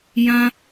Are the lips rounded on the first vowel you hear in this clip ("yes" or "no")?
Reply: no